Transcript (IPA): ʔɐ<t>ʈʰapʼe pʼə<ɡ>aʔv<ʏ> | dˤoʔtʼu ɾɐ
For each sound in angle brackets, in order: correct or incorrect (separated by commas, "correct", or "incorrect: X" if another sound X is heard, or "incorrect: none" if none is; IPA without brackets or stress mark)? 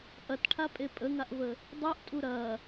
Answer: correct, incorrect: ŋ, incorrect: ə